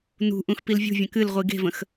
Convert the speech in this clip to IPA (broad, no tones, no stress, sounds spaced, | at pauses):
n ṳ ʔ ũ x p i l vʲ ṳ vʲ ə̃ k ɨ l ʁʷ i ɡ e̤ v ə̃ x